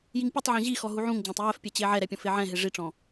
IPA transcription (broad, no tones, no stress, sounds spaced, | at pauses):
j i ŋ pʲ ɯ tˤ ʕ ɔ̃ ʑ i x ɔ ɦ u ʕ ũ ŋ d͡ʑ ã tˤ j ɛ f pʲ ɛ t͡ɕ e ʕ ɛ ɾ ɛ pʲ ɔ̃ f e ʕ ɛ̃ ɦ e ʐ i ʈ͡ʂ ɔ̃